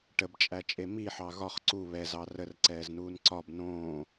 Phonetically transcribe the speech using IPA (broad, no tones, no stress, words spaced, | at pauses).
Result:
ʈəbt͡ʃʼæt͡ʃʼe miħɑ ɣɒχ ǀu βɛzɑ rərǀɛːznuːn ǀɒb nõː